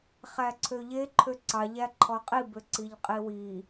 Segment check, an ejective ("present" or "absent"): present